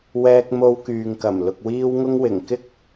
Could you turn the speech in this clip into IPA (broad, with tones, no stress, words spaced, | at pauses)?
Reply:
wɛː˧k̚mo˧wkyː˨ŋ kɐ˨˩mlʊ˨k̚wiː˧wŋʊ˧ŋ wɪ˨˩ŋ kɪ˥k̚